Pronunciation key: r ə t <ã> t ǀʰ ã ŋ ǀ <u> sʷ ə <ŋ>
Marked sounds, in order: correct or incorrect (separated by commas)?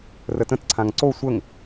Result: incorrect, incorrect, correct